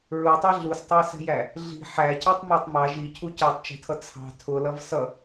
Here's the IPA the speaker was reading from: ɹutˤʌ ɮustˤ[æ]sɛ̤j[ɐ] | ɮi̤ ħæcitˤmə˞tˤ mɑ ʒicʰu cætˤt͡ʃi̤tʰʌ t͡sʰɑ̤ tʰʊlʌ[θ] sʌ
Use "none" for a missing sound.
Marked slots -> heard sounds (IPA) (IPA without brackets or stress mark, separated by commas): æ, æ, v